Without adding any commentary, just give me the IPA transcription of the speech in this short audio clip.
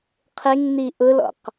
qʰ ɪ ŋ n i ʔ ʊ l ɔ̰ q

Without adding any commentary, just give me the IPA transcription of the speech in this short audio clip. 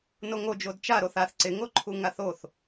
n o ŋ o d͡ʒ o d t͡ʃ a ɾ o θ a θ ǀ ɪ ŋ o ǃʰ u ŋ a θ o θ

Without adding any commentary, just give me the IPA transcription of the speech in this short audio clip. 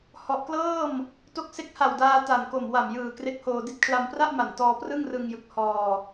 h ɔ˨˩ ʔ k l ɤː˥˩ m | t o˦˥ k̚ s e˦˥ k̚ h a˨˩ w d aː˧ t a˨˩ n k o˨˩ m w a˨˩ m j ɯː˨˩ k r e˦˥ k̚ h oː˧ d i˥˩ t̚ kʰ l a˧ m p r a˥˩ ʔ m a˨˩ n t ɔː˧ p r ɯ˥˩ ŋ r ɯ˧ ŋ j ɯ˨˩ k̚ h ɔː˧

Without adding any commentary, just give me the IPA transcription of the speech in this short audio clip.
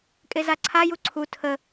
kʼ e z a ǀʰ a j u ǀʰ u tʰ ə

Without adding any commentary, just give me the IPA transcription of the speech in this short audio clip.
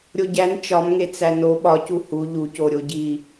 ɾʲ o ɟ æ n t͡ʃ ɒ m ŋ e t͡s æ n o ɓ ɒ c u h u ʎ u c o ɾʲ o ɟ i

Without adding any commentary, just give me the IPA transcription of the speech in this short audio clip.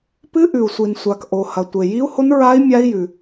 p ɨ˦˥ ʔ ʉ˩ u̯ sʷ i˩ n sʷ a˩ k ʔ o˩ h ɐ˩ tʷ e˩ j i˦˥ u̯ h o˦˥ n ɹ a˦˥ i̯ mʲ a˦˥ i̯ j ʉ˩

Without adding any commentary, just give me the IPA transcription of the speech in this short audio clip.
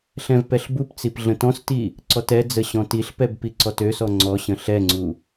ɬ ɛ̃ v p ɛ ɬ b u p t͡s i p ɮ ə̃ t ɔ̃ s t i | ǀ ɔ t ɛ d͡z ə ɕ ɔ̃ t i ɬ p ɛ b p i ǀ ɔ t ø s ɔ ŋ͡ǀ ɔ ɕ ə̃ ɬ ɛ ŋ͡ǀ u

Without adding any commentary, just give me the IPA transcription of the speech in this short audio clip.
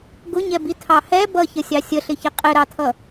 ɡ ʊ ɲ ɛ b i tʰ ɑ h ɛ b ʌ ç ə sʲ ɑ sʲ ə ɬ ɪ ç ɪ qʼ ɪ ɾ ɑ tʰ ʌ

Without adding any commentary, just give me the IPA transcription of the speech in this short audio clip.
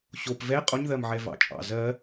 ɕ o p v ɛ qʼ o ɲ ð ɜ m ʕ ɛ v ɑ̰ t͡ʃʼ ɑ̰ z ɜ

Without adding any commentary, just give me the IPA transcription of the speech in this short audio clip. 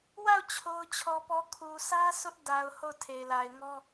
w a˦˨ ʊ̯ t͡ɕʰ o˦ ʊ̯ t͡ɕʰ ɔ˦ p ɔ˦ kʰ u˨ sʰ ä˦ s ʊ˦ ʔ d a˨ ʊ̯ h o˦˨ ʊ̯ tʰ e˨ ɪ̯ l a˨ ɪ̯ ŋ ɔ˦

